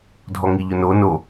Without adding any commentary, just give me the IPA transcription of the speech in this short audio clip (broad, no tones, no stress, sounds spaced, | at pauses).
dʱ ɔ ŋ i ʎ ʊ n o n o